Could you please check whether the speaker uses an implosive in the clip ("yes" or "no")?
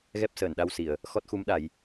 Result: yes